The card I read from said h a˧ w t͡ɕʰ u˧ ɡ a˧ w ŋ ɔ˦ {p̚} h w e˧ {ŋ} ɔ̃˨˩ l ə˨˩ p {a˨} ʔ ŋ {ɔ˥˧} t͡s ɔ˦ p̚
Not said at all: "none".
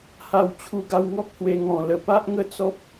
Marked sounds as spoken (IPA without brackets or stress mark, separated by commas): k̚, ŋ, a˦, ə˥˧